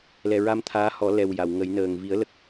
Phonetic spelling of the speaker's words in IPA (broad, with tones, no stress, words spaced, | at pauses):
lɛ˨˩ɹa˧mt̪ʰaː˧˥hɔ˨˩˦ lɛ˨˩wja˨˩˨w ŋə˨˩˦jnəː˨˩ŋ vi˨˩˦ə̯lə˨˩k̚